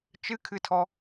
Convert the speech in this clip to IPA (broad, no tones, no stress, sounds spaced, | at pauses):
t͡ʃ ɨ kʰ ɨ tʰ ɔ